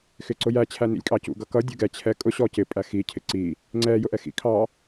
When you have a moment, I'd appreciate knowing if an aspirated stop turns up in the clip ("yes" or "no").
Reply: yes